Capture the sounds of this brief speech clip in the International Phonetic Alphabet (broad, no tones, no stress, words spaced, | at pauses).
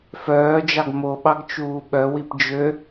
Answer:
fœːd͡ʒɑɡ moɓɑɡ t͡ʃuːɓœwip d͡ʒø